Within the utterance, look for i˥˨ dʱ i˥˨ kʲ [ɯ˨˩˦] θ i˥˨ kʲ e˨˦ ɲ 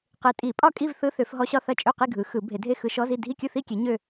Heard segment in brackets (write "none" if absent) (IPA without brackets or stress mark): ɯ˥˨